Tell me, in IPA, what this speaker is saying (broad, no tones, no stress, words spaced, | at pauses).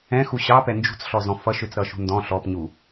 ɛ̃xu ɕɑpɛ nd͡ʒṳt͡sɬɔzɔ̃ fʌʃøt͡sɾʌʃṳ ndɔ̃ ɬɔpɲu